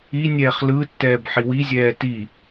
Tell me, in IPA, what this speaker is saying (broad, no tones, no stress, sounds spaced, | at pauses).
i nʲ ɛː χ l ɯ tː ɛː b ħ i w i zʲ ɛː t i